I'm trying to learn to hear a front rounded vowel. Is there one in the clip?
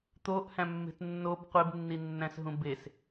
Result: no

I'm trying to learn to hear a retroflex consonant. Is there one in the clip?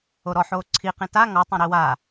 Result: no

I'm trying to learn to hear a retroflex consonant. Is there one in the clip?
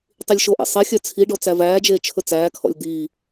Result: yes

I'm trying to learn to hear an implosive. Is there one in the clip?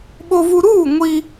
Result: yes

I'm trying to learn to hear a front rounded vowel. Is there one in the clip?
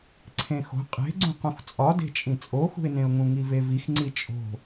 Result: no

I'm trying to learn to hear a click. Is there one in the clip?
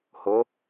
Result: no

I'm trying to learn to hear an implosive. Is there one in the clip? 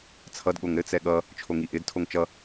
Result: yes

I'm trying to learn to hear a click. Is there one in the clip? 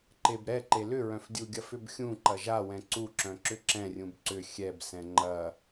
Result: yes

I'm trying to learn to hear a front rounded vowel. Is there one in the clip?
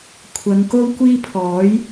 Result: no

